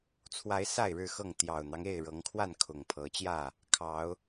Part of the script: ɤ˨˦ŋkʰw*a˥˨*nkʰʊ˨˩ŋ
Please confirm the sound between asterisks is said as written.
yes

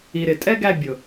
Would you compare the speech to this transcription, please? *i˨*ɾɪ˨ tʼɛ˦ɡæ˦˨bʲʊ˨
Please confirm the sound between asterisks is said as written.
yes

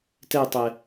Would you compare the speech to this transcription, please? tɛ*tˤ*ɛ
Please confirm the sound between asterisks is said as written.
yes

